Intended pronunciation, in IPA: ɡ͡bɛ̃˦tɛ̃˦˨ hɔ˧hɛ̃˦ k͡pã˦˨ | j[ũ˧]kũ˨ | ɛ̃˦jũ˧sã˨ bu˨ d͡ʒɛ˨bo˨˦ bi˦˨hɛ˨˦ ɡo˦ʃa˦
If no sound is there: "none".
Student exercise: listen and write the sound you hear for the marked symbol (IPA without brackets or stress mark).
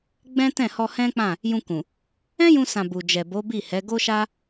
ũ˧